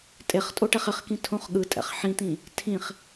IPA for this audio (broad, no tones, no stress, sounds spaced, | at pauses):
tʼ e χ tʼ o ʈ ɛ χ ɪ χ k ĩ tʰ õ χ ɠ ɯ tʼ ɛ̰ χ ħ ĩ t̪ ĩ | tʰ ĩ χ